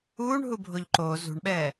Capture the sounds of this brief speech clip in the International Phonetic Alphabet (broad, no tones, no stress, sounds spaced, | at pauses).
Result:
uː ɳ ɦ u bʱ o ʎ ǃ oː z ṳ ɳ ɓ ɛː